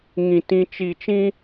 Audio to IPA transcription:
ŋĩ˨ tĩ˦t͡ʃi˦˨ t͡ʃĩ˦

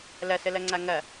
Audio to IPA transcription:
lɐsəlɐŋ͡ǀa ŋɐ

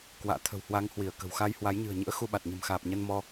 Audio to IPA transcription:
kwa̰ː˧˨ t̪ʰə̤˨˩whwa˨˦ŋ hwi˧˩ə̯kə̤˨˩wxa˧j hwa˨˦jɲɨ̤˨˩ə̯ɲɨ̰˧˥ə̯ xu˧ɓa˨˩t̚ ɲə̤˨˩mxaː˨˩p̚ɲə˧n mɔ˧

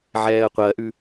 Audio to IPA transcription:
ʕɛːə̯qʷɜʔʉ

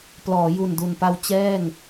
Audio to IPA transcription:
plɔː˩˦ju˨˩ndu˨˩npa˧w t͡ɕɛː˥˩ŋ

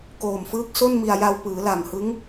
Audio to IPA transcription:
koː˨˩mfɯː˦˥k̚ so˥˩n mi˧a̯ ja˧wpɯː˩˦ la˨˩mhɯ˦˥ŋ

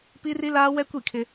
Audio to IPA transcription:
pi˦ri˦laː˦wɛ˦ kʷi˦˨kʰɪ˦

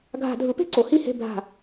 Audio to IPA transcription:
ɡʱa̤˧˩˧dʱɯ˩˥pe̤˥˨ ǀo˩˥hi˥˨he̤˥˨ bʱa̤˧˩˧

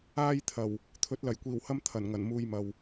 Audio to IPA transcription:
aː˧jt̪ʰɐ˨˩w | t̪ʰɵ˨˥t̚lɐ˨˩jkʷiː˨˩whɐ˥m t̪ʰɐ˨˩n ŋɐ˨˩nmuː˧jmɐ˨w

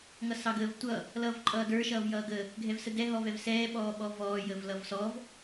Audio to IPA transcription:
ŋʌsɑɡəːvtʷʌ | lʌːvǃʼʌːdə˞ ʃʌːvjʌːɡə | ɡʱɛvsədɛ ɦɔvɛvsɛː ɓɔːɓɔvɔː jəvlʌvsɔv

